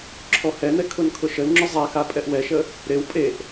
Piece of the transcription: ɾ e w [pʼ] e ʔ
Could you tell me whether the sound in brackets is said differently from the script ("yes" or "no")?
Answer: no